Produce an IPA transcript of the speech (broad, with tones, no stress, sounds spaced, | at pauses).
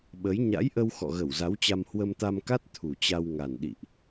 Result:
ɓ ə˨˦ j ɲ a̰˧˥ j ʔ ə˧ w x ɔ̰˧˨ ɣ ə˧˩ w z a˨˦ w t͡ɕ a˧ m h w ə˧ m t̪ a˧ m k a˦˥ t̚ t̪ʰ u˨˩ t͡ɕ a˧ w ŋ a˨˩ n ɗ ḭ˧˨ ʔ